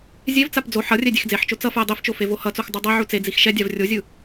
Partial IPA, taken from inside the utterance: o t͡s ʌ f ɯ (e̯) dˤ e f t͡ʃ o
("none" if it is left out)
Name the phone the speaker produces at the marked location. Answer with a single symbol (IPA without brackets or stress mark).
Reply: e̯